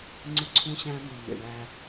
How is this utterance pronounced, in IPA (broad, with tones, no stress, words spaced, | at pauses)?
ŋ͡ǀɯ˦ǀʰũ˦ɕæ̃˦ my˨mḛ˨ɳæ˦